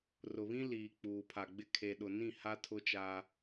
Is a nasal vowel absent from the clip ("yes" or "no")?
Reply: no